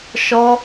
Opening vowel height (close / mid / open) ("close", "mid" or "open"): mid